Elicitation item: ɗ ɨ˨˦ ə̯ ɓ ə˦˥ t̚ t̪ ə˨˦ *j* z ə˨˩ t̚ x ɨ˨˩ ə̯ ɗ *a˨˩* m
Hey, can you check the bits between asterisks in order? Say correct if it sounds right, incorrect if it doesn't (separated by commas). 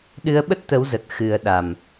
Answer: incorrect, correct